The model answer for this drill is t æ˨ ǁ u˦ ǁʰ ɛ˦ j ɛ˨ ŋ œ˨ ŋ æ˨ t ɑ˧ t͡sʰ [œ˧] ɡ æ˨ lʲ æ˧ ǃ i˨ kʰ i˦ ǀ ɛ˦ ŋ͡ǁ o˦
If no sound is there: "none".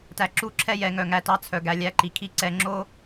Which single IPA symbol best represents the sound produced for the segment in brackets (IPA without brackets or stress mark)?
œ˨